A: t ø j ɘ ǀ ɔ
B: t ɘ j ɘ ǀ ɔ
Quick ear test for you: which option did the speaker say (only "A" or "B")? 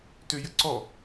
A